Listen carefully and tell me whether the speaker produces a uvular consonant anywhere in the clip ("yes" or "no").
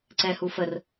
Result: no